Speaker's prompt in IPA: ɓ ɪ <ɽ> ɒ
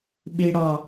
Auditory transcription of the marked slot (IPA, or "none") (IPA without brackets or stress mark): ɽ